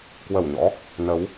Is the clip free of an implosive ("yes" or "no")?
yes